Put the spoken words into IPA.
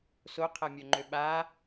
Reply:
s o qʰ ɛ mʲ œ ŋ͡ǃ ø ɓ a

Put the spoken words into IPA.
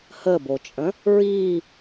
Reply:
h ə b o t͡ʃʼ ə̃ | ɹ iː

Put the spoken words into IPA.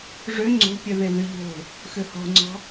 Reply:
ʐ ø ŋ͡ǀ o̤ pʲ œ ð e ð y ʎ o̤ | x ø h ɔ̤ ŋ͡ǀ ɔ̤

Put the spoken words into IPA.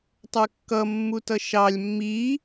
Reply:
tˤ ə˞ kː ʌ mː u t ʌ ʃ ɑ lʲ mː i

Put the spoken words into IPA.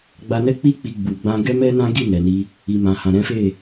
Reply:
ɡ͡b a˧ n ɛ˦ k͡p i˦ k͡p i˧ ɡ͡b u˨ ɡ͡b ã˧ ɡ ɛ˦ m ɛ˦ n ã˦ ɡ i˦˨ n ɛ˨ n i˧ | i˨ m ã˨ h ã˨ ɾ ɛ̃˨˦ f e˦˨

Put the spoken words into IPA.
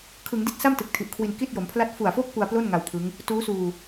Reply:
kʰ ɯ˩˦ ŋ d i˦˥ t̚ s a˥˩ m t ɯ˨˩ k̚ tʰ i˨˩ ʔ kʰ w i˧ n k i˥˩ t̚ j o˩˦ m pʰ l a˥˩ t̚ f u˨˩ a̯ f o˥˩ k̚ p u˧ a̯ p l o˥˩ n ŋ a˧ w pʰ ɯ˦˥ ŋ | t uː˦˥ s uː˧

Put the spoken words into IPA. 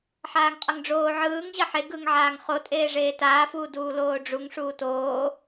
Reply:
ħ aː ŋ qʼ ʌ ŋ ɖ͡ʐ oː ʕ ɯː ŋ ʑ ʌ ħ e ɡ ɯ ŋ ʕ aː ŋ χ o tʼ eː ʐ eː t aː f uː d uː l oː ɖ͡ʐ u ŋ ʂ uː t oː

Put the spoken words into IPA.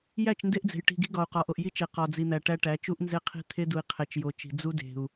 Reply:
j æ˦˨ t͡ʃ n d e˦ ʔ d͡z e̤˨ j ʈ i̤˨ ɡ i̤˦ ɡ ɒ˨ u̯ q ɒ˨ ʔ o˨ ʔ j i˦ t͡ʃ e˨ q ɒ˨ d͡z i˨ n̪ æ˨ ʈ æ˦ ʈ æ˨˦ t͡ʃ u˦ ʔ n z e˦ qʰ i̤˦ t̪ʰ e˦ d u˨ i̯ qʰ e˨ t͡ʃ j o˨ t͡ʃ i̤˨ d͡z u˦ d e̤˨ u̯

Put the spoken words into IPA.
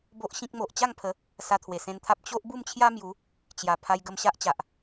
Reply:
b o˦ ʔ ɕ ĩ˦ k̚ m o˨ ʔ t͡ɕ a˥˧ ŋ pʰ ə˨˦ | s a˧ t̪ʰ w e˨˩ s ẽ˧ n t̪ʰ a˦ p̚ t͡ɕ o˦ ʔ b u˥˧ m t͡ɕʰ j a˦ m j u˨˦ | t͡ɕ j a˨˩ pʰ a˧ j ɡ ə˧ m ɕ a˦ ʔ t͡ɕ a˨ ʔ

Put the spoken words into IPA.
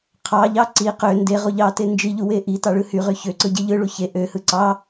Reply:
qʰ ɑ ʎ ɑ ǀ i q ø n d e ʁ u ʎ ɑ t e n d͡ʒ i ʎ u w e ʔ i t ɑ ɭ ɯ h y ʁ y ç ø ǀ ɯ ɟ e ʎ ɯ ɭ u ç e ʔ ø h ɯ ǀ ɑ

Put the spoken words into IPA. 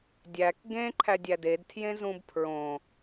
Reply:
dʲ æ k ɡ ẽ ǃʰ æ dʲ æ d e d tʰ j ẽ z ũ b pʰ ɹ õ

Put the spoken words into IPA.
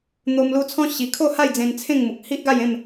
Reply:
n̪ o˧ m l u˧ t͡sʰ ɔ̃˦ ɕ i˧ kʰ o˥˧ h a˥˧ j d͡z ẽ˧ n t͡sʰ ẽ˥˧ ŋ m u˨ k̚ h i˦ ʔ ɡ a˥˧ j ẽ˥˧ m

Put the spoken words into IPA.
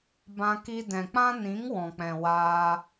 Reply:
b ã˧ k i˧ d ɛ̃˨ k͡p ã˦ n ĩ˨˦ ŋ w ɔ̃˨ k͡p ɛ̃˨ w aː˧

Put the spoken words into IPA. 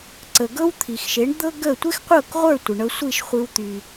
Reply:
ǀ ə˩ ɡ ɤ˥ w t̪ʰ i˩ x ʃ e˩˥ ɳ d̪ ɤ˥ ɡ ə˥˩ tʷ e˥ x qʷ ɤ˥˩ k ʁʷ ə˞˥˩ tʷ ə˩ ɳ ɤ˧ sʷ i˥˩ ʃ χʷ i˧ w t̪ y˩

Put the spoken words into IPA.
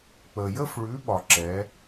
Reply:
k͡p ə˨ j ə˥˧ f ɭ ʉ˨˥ ɓ ɒ˨ ǁ ɛ˨˥

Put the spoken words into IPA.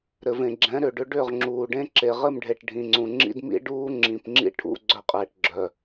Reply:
ɾ ɘ˨ v ẽ˨ ɡ͡ǁ ɛ̃˨˦ ɾ ʏ˨ ɖ ʏ˦ ɖ ʏ˦˨ ʁ ŋ͡ǁ uː˨ ɖ ẽ˦ ǁ e˨ ʁ ɘ˦˨ m ɖʱ e˨ ʈ ɖʱ ĩ˨ ŋ͡ǀ ũ˨ ŋ͡ǁ ḭ˦ d m ḭ˦ ɖ uː˦ ŋ͡ǁ ĩ˨ p ŋ͡ǁ ḭ˦ ʈʰ ṵ˦ ɡ͡ǀ œ˦˨ qʼ ɛ˨ ʈ ɡ͡ǁ œ˨

